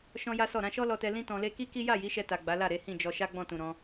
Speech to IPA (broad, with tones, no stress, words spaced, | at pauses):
ʃɔ̃˦ja˦sɔ˦˨ ɾã˧ʃɔ˦lɔ˧tɛ˧ lĩ˦tɔ̃˧le˦ ki˦ki˦ ja˦˨ji˨˦ʃɛ˧ ta˨ ɡ͡ba˨˦la˦˨ ɾe˨˦hĩ˦˨d͡ʒɔ˧ ʃa˦ɡ͡bɔ̃˦˨tũ˨ ɾɔ̃˨˦